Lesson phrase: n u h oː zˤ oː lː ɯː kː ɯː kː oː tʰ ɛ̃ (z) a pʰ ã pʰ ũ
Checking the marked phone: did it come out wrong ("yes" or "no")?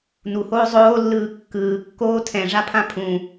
yes